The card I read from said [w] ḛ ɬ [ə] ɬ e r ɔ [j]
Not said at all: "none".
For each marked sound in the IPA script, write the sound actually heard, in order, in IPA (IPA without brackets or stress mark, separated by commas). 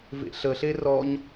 v, ə, ɲ